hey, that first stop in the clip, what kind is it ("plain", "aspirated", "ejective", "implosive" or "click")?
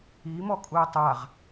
ejective